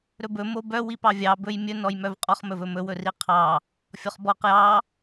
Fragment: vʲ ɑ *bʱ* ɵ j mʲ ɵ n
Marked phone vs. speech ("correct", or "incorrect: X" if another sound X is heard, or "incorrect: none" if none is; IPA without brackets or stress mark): incorrect: b